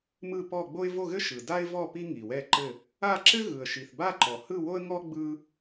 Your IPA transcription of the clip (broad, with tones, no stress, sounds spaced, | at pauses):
m ɯ˥˧ p ɔ˥˧ ɡ͡b o˥ ɪ̯ v o˥˧ ɣ ɘ˥ ʃ ɯ˨ d a˥ ɪ̯ v ɔ˥˧ p i˥ ŋ i˨ w ɛ˥˧ ǃ ɘ˥˧ | a˥˧ ǁ ɘ˥ ɣ ɯ˨ ə̯ ʃ i˨ θ b a˥˧ ǃ ɔ˨ h ɯ˥˧ w o˥ ə̯ ŋ ɔ˥ ɡ͡b ɯ˥